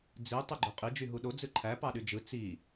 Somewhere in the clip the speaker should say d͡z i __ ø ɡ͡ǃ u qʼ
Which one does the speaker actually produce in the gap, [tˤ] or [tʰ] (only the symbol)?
tˤ